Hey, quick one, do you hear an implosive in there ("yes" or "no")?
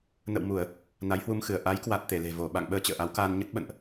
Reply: yes